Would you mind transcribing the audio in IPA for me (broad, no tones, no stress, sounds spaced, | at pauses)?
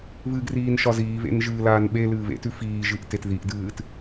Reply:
β ɨ ɡ r iː n ʃ ɒ z iː β ḛ n ʒ ɨː l aː n ɓ e l ɨː β ḛ t ʉ f iː ʒ ɨ ʔ t e t ð i ʔ d ɨː t